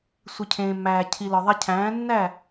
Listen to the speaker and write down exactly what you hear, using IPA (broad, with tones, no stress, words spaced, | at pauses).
sʷi˨cʰẽː˨mːæː˨ cʰi˨lɒ˨ðˤe˧cʰæ̃ː˨˦ nːæ˦˨